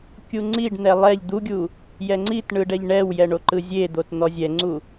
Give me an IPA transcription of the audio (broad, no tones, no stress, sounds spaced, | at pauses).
kʲ u ŋ͡ǀ i ɖ n̪ ɛ lˠ ɛ ʎ d̪ u ɡʲ u | j ɛ ŋ͡ǀ i t ɳ ɯ ɖ ɛ ʎ ɳ ɛ w j ɛ ɳ o ǃ ɯ zʲ e d̪ o t n̪ ɔ zʲ ɛ ŋ͡ǀ u